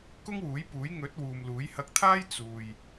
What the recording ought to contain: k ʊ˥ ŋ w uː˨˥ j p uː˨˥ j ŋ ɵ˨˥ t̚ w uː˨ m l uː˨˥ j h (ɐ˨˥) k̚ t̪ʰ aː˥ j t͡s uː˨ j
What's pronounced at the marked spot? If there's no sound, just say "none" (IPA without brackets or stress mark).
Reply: ɐ˧